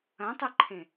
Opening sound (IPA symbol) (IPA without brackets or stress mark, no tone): ɐ̃